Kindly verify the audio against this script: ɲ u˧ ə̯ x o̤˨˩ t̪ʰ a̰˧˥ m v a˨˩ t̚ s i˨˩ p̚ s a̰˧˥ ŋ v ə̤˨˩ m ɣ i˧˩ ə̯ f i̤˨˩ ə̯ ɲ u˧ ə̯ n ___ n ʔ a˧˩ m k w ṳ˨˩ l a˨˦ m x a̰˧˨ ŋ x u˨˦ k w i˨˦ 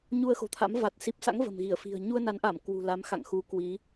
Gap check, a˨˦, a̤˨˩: a˨˦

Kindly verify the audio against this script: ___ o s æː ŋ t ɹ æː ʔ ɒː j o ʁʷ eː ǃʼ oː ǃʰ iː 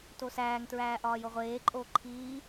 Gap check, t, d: t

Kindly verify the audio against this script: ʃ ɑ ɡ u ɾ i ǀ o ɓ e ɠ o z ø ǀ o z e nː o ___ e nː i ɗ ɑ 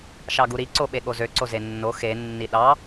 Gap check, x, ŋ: x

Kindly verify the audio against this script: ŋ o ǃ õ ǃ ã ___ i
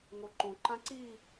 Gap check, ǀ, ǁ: ǀ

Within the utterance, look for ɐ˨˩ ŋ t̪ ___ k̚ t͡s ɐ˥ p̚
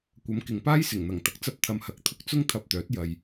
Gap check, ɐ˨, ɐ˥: ɐ˨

